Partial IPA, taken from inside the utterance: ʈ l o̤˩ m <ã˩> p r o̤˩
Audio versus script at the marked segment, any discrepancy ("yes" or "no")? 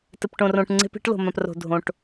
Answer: no